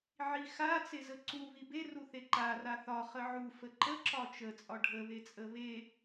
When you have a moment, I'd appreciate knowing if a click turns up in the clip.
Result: yes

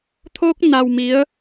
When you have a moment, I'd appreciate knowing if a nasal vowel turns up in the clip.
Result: no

